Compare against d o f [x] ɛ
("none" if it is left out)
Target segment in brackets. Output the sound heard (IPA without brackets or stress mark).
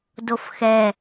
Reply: x